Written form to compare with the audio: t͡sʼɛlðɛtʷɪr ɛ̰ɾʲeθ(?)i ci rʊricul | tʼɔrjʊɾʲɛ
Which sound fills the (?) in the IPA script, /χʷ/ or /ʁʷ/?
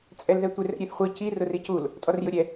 χʷ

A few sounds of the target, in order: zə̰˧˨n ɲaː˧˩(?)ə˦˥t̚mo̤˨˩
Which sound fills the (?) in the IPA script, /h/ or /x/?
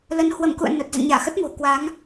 x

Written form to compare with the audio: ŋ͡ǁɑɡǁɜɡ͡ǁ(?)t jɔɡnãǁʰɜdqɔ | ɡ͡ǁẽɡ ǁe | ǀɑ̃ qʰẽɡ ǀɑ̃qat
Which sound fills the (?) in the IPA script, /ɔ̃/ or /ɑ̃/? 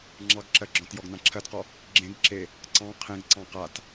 ɔ̃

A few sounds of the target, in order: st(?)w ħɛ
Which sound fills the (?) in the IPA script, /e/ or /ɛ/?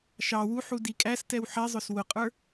ɛ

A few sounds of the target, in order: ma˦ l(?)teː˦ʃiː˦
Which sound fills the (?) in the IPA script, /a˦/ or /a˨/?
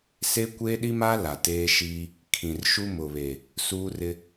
a˨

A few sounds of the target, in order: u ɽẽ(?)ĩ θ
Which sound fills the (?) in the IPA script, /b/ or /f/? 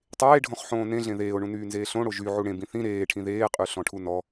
b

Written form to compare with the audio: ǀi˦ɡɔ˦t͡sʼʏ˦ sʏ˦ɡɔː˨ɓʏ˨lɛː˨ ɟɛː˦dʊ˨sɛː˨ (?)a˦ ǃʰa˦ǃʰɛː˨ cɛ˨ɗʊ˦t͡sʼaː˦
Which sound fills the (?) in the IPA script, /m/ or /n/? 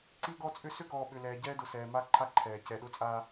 m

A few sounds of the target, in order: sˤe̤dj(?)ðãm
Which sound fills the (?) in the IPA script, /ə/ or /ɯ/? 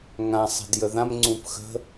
ə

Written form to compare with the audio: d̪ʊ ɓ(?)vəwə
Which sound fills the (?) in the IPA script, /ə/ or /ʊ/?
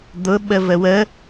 ə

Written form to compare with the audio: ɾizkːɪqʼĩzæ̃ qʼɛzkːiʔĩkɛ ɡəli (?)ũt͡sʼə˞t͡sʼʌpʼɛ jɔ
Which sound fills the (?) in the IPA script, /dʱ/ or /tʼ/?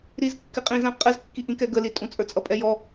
tʼ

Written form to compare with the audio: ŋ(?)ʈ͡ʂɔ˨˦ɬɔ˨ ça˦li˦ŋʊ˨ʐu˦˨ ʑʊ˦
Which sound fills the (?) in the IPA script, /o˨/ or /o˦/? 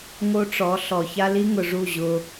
o˦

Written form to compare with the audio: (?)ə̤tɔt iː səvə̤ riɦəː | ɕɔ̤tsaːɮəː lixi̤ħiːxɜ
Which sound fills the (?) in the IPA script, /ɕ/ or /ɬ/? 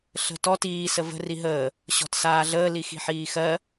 ɬ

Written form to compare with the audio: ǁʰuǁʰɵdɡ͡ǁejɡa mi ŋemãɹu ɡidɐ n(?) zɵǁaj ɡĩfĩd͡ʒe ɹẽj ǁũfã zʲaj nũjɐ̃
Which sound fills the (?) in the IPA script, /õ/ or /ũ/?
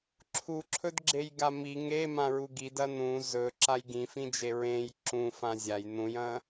ũ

